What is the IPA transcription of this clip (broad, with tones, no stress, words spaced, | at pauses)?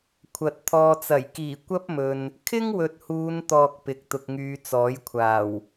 kʷʰɐ˨t̚ t̪ʰɔː˨t͡sɐ˨˩j kiː˨˩ kʷɐ˥p̚mɵ˨n | kʰɪ˥ŋwɵ˨t̚huː˨˧n t̪ɔː˧k̚pɪ˨k̚ t̪ʊ˨k̚ŋyː˨˧ t͡sɔː˨˥jkʷʰaː˨˩w